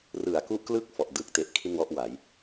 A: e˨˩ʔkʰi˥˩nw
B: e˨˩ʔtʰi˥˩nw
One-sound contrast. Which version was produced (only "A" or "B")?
A